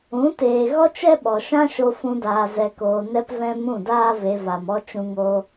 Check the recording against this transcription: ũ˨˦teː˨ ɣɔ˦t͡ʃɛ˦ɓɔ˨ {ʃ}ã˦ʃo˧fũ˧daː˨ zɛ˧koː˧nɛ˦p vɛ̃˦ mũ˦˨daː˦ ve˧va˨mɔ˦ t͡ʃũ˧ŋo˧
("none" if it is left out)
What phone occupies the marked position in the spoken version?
ʃ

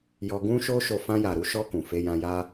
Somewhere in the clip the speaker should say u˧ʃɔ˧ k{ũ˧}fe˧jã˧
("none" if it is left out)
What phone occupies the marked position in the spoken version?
ũ˨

